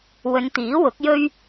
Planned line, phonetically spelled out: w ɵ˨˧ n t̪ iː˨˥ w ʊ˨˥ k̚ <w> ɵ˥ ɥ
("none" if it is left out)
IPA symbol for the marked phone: j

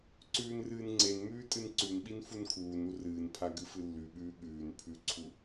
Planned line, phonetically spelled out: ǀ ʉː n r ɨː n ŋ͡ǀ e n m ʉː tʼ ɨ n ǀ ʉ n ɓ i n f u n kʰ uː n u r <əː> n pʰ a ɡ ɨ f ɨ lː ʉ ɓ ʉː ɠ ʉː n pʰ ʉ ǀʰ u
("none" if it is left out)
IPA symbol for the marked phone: ɨː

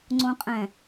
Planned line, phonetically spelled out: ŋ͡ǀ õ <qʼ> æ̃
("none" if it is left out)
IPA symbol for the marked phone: qʼ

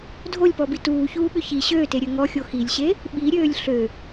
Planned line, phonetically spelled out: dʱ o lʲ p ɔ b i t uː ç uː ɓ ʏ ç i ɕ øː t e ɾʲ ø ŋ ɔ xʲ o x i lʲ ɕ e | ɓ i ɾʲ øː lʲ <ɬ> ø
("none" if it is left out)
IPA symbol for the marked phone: ɬ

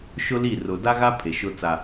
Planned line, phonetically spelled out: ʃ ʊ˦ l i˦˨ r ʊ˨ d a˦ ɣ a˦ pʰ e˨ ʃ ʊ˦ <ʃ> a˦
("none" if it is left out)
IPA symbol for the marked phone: t͡s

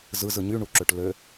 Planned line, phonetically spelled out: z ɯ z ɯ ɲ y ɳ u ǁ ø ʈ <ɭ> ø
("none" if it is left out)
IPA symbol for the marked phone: l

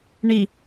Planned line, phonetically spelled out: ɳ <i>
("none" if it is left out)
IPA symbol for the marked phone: i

